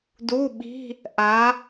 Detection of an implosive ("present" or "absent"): present